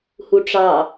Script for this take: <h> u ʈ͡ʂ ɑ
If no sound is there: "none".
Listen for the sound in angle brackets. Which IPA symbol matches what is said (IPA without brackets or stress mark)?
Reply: h